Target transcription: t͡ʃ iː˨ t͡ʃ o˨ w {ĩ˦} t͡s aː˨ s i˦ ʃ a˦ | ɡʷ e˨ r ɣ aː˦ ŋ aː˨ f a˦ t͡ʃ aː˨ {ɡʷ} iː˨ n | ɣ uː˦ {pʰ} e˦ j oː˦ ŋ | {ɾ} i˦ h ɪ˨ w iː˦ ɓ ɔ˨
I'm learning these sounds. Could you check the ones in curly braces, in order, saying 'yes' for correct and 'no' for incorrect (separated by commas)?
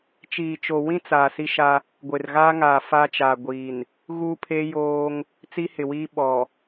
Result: yes, yes, yes, no